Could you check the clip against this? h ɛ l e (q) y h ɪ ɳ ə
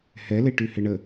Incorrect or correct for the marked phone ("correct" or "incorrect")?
incorrect